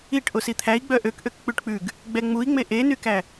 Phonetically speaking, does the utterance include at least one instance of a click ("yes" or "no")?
no